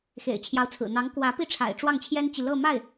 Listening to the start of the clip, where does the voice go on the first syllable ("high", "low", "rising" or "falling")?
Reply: low